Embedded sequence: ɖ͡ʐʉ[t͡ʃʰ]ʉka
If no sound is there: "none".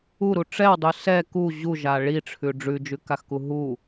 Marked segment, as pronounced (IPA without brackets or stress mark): d͡ʒ